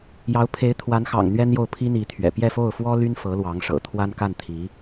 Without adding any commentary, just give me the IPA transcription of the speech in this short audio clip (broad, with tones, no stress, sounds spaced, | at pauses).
j ɑ˧˥ ʊ̯ pʰ e˧˥ ɪ̯ t̪ʰ w a˧˥ n x ɑ̰˨˩ ŋ n̪ ɥ ɛ˥ n j o˥˩ ʊ̯ pʰ i˥ n̪ i˧˥ t̪ʰ ɥ ɛ̰˨˩ p j ɛ˥˧ f o˥˩ ʊ̯ f w ɔ˥ l y˥ n f ɤ˧˥ l w ɑ˧˥ ŋ ʂ ɤ̰˨˩ t̪ʰ w a˥ n k a˥˩ n t̪ʰ i˧˥